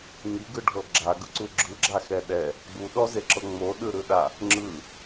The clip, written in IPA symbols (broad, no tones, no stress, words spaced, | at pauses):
ŋiɡɯɖʱɤ ɡ͡ǁaɡɯǀu ɡ͡ǁɯɡ͡ǁaxɛ ɗɛ | ɡ͡buɗɔzeǁɤ ŋ͡moɗɯɾɯɗa | ŋ͡ǁɯ